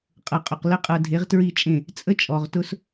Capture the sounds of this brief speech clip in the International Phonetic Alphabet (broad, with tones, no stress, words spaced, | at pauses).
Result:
qʼʌ˨qʼʊ˨qlə˦ qʼɤ˨ dʱe˨˦ʁtɹi˦˨t͡ʃʼẽ˦˨ | t͡sʼə˦t͡ʃʼɔ˨ʁtʊ˦s